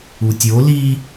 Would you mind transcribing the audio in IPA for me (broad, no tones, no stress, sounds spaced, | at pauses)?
u tʲ o l i